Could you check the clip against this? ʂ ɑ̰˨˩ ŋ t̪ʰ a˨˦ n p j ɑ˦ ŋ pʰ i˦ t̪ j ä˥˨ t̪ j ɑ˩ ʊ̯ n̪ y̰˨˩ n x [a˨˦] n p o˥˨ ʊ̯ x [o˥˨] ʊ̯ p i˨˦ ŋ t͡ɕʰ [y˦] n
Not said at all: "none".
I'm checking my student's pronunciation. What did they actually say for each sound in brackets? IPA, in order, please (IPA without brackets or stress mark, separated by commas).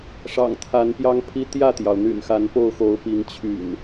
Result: a˨˦, o˨˦, y̰˨˩